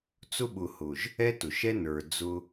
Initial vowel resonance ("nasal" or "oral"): oral